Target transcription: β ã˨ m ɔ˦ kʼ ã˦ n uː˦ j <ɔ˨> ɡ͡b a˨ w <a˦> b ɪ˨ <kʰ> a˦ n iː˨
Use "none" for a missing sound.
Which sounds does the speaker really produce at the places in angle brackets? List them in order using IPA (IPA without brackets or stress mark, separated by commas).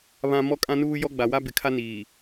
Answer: ɔ˦, a˦, kʰ